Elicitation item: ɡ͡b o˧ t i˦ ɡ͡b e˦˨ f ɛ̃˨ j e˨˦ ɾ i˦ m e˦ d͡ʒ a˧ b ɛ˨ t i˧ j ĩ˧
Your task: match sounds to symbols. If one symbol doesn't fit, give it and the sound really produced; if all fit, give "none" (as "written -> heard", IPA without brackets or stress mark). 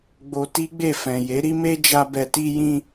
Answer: none